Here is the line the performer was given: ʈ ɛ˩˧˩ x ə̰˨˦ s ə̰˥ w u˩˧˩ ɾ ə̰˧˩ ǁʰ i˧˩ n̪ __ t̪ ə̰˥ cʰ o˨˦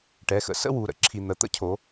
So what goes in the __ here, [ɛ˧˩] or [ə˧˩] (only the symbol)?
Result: ə˧˩